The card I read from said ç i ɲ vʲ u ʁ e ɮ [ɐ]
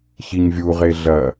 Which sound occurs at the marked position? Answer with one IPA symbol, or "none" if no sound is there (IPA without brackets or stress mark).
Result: ɐ